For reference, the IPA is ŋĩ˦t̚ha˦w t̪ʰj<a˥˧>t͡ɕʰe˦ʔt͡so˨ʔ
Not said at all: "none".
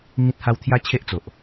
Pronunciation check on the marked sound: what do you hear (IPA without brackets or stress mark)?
a˦